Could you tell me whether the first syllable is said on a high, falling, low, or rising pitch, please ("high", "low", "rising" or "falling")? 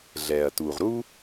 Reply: low